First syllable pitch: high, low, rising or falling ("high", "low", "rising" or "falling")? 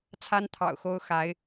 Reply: high